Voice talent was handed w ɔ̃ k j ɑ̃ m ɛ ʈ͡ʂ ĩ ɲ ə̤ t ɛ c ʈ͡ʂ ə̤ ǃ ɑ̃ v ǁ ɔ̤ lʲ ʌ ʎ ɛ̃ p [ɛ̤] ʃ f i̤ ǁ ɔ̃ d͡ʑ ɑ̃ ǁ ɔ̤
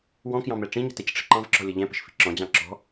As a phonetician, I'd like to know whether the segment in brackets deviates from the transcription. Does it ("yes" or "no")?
yes